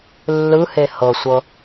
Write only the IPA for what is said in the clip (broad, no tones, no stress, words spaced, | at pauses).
lːɯhe hɤsʷɤ